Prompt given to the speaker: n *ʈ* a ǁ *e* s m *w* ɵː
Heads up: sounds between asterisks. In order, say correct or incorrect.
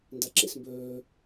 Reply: incorrect: d, incorrect: ḛ, incorrect: b

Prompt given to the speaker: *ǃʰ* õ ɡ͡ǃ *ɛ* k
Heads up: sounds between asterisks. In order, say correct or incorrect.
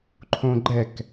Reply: correct, correct

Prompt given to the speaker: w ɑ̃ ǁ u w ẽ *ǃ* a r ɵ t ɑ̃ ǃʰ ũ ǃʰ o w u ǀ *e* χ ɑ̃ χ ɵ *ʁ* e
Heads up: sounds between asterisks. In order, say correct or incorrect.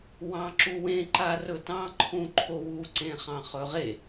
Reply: correct, incorrect: ẽ, correct

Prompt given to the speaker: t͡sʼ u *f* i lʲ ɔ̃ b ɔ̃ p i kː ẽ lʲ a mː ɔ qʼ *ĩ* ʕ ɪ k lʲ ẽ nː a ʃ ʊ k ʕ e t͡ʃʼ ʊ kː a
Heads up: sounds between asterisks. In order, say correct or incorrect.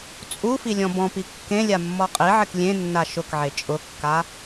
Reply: correct, incorrect: i

